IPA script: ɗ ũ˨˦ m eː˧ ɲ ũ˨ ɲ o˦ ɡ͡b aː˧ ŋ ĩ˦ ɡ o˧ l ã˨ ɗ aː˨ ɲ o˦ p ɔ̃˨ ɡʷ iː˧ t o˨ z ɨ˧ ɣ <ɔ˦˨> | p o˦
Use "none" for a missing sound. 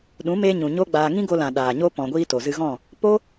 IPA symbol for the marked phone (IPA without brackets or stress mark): ɔ̃˦˨